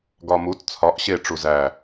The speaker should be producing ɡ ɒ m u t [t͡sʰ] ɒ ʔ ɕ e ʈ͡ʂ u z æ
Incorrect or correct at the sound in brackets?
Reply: correct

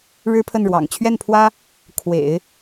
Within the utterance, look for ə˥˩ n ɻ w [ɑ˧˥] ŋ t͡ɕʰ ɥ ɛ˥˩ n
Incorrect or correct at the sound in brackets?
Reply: incorrect: ɑ̰˨˩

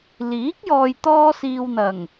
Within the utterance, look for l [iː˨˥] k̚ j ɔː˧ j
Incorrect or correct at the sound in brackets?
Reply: correct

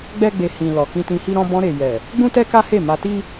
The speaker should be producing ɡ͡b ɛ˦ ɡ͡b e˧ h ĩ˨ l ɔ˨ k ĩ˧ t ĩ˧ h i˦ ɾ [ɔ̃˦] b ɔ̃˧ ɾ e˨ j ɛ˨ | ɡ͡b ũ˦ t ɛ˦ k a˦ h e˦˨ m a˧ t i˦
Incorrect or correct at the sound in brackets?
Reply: correct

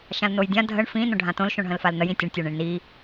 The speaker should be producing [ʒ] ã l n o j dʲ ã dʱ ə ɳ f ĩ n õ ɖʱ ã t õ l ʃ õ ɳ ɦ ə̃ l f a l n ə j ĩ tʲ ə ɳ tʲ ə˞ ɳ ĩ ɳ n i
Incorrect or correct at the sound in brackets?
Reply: incorrect: ʃ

